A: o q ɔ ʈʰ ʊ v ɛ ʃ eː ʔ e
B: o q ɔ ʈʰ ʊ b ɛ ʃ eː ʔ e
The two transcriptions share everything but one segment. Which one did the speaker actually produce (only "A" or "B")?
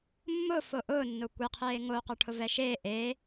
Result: A